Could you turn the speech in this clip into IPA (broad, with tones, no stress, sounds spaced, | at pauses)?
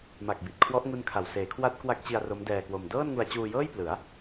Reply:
m a˨˩ k̚ b i˨˩ t̚ kʰ w ɔ˦˥ ʔ ŋ u˦˥ n kʰ a˨˩ w s eː˩˦ kʰ w a˦˥ t̚ k w a˦˥ k̚ t͡ɕ i˧ a̯ r o˦˥ m d ɛː˧ k w o˧ m d ɤː˥˩ n ŋ u˧ a̯ t͡ɕ uː˧ j ɤː˥˩ j p l ɯ˩˦ a̯